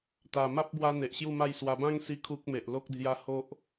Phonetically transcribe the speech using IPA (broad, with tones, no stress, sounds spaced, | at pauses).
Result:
t̪ a˨˩ m a˦ p̚ b w a˧ n̪ e˨ ʔ ɕ j u˥˧ m a˥˧ j s w a˧ b ã˦ ŋ s i˧ kʰ u˦ k̚ m e˨ ʔ l o˦ k̚ d͡z j a˦ h o˦ ʔ